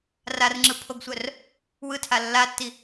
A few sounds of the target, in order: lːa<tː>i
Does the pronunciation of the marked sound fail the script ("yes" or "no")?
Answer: no